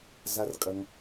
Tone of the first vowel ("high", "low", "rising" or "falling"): low